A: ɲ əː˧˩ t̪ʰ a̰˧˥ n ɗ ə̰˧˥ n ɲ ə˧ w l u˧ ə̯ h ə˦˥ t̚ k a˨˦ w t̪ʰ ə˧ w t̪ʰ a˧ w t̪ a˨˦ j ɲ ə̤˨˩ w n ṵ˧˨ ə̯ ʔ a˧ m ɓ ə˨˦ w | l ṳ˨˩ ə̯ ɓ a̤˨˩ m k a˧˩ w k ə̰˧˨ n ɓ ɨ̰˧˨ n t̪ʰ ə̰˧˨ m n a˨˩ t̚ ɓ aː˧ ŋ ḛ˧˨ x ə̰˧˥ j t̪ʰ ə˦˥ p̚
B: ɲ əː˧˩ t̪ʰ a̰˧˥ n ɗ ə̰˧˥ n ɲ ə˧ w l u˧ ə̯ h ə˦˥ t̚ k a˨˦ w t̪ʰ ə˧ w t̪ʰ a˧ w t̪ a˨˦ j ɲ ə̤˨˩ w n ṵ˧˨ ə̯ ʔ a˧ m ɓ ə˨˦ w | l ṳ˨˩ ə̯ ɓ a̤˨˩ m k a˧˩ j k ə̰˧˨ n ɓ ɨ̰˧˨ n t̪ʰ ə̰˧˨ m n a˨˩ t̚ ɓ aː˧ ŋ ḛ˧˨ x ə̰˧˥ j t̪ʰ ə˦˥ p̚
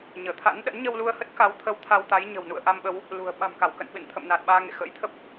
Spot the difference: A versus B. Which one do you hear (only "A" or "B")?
A